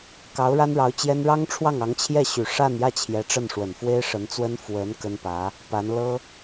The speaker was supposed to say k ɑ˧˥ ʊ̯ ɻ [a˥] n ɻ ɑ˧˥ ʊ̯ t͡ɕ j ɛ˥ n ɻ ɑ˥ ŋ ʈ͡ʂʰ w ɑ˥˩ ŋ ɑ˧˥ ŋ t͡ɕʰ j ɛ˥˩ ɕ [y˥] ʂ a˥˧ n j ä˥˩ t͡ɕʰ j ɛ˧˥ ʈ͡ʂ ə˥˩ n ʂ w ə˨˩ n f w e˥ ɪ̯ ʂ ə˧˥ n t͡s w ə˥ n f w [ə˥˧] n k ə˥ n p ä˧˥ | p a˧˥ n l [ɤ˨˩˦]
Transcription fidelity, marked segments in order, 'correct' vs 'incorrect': correct, incorrect, incorrect, incorrect

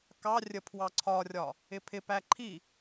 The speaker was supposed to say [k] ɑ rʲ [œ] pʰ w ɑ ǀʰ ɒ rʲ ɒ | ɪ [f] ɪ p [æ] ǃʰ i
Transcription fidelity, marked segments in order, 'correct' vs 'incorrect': correct, incorrect, incorrect, correct

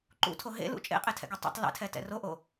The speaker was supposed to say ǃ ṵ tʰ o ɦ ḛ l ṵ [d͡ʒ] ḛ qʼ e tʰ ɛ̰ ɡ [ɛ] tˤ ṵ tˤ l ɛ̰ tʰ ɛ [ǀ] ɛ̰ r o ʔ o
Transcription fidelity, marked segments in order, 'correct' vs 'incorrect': incorrect, correct, incorrect

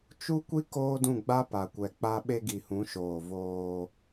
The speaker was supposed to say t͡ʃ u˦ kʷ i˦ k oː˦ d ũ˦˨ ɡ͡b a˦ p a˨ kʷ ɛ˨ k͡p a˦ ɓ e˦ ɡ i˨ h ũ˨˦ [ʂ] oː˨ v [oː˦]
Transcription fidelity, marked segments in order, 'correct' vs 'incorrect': incorrect, correct

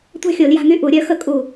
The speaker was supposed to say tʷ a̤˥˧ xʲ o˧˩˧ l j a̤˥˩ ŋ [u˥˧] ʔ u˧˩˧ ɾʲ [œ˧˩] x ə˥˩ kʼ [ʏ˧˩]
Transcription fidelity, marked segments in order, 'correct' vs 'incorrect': incorrect, incorrect, incorrect

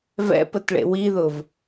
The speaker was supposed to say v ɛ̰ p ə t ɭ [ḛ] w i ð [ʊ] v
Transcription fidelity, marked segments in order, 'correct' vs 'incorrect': correct, correct

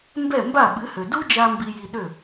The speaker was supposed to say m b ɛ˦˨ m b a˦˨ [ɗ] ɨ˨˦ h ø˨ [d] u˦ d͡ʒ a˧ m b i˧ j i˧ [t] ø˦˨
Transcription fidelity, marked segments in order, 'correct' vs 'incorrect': incorrect, correct, incorrect

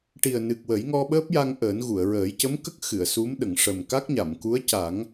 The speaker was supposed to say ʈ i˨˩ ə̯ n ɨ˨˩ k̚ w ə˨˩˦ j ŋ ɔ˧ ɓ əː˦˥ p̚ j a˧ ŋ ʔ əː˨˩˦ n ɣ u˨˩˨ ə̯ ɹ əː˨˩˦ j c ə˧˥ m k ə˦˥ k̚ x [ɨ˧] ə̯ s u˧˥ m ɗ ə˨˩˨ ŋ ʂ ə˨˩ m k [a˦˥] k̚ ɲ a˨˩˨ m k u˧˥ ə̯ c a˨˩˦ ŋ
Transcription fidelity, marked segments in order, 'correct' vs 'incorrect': incorrect, correct

